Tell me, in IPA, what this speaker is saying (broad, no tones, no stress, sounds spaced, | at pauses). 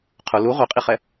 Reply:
qʰ ʊ l u ʁʷ ɛ qʼ i χ ɛ